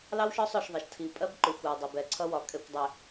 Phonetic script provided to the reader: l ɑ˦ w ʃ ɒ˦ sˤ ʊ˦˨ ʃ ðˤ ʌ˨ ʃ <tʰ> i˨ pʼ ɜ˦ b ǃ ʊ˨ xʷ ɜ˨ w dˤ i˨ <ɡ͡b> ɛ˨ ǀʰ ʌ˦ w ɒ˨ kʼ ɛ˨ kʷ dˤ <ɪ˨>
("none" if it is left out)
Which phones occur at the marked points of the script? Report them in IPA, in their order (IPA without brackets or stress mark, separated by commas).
tʰ, b, ɪ˨